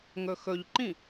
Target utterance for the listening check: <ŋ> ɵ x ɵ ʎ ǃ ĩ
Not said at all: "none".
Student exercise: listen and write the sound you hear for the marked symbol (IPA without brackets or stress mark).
ŋ